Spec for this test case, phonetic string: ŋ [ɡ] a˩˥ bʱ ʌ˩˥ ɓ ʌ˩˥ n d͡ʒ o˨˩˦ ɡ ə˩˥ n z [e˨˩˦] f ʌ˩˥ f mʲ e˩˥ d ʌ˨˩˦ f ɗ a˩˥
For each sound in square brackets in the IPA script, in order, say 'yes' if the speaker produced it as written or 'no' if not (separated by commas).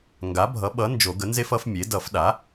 yes, no